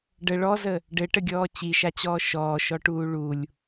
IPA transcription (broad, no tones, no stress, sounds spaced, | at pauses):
ɖ ə ɭ ɔ z ə | ɖ ɘ ʈ ə ɡʲ ɔː t͡ɕ i ʃ a t͡ɕ ɔː ʃ ɔː ʃ ɔ ʈ uː ɭ u lʲ